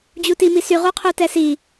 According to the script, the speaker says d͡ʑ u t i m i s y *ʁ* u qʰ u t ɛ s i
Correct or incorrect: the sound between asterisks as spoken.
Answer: correct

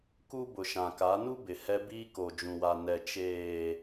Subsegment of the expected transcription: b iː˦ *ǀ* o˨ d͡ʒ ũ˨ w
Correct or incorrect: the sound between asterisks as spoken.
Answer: incorrect: k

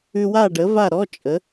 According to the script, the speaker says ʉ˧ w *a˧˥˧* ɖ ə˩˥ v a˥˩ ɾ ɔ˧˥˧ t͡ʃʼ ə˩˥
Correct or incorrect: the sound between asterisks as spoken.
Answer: incorrect: a˥˩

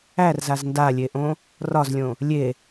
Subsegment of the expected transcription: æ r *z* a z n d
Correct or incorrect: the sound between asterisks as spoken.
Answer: correct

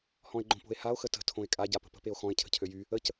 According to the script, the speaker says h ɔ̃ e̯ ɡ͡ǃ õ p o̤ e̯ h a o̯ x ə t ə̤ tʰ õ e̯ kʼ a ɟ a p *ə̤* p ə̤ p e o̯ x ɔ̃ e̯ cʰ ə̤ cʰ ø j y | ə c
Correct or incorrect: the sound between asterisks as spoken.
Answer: correct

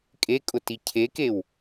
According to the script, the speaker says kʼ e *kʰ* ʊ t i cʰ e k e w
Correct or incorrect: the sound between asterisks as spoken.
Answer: incorrect: kʼ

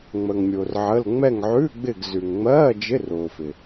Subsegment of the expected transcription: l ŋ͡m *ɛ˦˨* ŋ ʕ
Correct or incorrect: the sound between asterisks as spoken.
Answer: correct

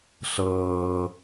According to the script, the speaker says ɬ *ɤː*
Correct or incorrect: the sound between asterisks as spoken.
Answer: correct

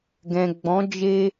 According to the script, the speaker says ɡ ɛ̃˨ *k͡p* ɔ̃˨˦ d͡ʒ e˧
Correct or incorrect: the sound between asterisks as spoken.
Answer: incorrect: ɡ͡b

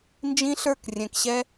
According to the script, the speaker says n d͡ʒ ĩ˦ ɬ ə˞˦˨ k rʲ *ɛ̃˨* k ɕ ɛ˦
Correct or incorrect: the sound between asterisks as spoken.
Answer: correct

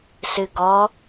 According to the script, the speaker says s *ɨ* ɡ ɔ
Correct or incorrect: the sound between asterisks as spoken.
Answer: correct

